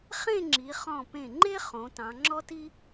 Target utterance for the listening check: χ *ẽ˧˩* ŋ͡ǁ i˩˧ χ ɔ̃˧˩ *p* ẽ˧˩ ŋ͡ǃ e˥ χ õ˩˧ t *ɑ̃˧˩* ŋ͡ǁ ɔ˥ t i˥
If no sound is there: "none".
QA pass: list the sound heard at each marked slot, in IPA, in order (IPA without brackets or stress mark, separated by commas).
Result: ẽ˥˧, p, ɑ̃˩˧